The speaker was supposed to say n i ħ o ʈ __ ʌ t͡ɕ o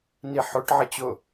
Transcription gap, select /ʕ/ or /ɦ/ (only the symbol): ʕ